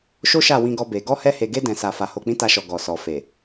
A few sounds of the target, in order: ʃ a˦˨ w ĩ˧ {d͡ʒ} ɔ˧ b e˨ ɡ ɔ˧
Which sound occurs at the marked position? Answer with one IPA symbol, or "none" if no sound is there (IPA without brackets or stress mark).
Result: ɡ